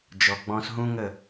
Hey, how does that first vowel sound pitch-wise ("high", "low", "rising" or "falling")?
low